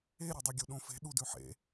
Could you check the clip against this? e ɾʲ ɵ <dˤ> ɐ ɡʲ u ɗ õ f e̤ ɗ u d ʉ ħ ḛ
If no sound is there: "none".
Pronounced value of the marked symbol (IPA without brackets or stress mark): dˤ